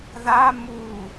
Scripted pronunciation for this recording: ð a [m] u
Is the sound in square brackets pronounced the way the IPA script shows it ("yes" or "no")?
yes